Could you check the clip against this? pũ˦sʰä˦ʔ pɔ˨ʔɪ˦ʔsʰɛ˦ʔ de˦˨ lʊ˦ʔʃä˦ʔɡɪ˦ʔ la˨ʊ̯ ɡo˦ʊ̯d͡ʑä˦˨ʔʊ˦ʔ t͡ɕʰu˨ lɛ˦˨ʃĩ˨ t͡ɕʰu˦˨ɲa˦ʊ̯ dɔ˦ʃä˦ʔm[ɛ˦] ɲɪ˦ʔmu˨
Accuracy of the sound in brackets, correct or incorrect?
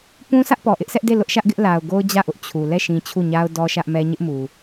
correct